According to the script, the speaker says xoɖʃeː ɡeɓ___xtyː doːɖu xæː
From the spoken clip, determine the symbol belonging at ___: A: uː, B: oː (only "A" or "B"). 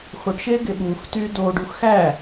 A